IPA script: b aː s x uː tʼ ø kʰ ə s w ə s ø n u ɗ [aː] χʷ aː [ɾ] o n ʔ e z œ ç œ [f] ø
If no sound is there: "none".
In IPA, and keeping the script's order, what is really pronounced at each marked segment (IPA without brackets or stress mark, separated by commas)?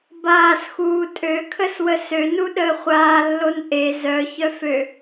əː, lː, f